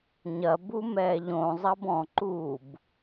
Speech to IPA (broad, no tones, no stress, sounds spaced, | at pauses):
ɲ ɐ b u m ɛː ʎ õ zˤ ɐ b ɔ̃ ǃ uː b